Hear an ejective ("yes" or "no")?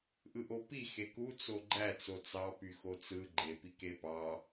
no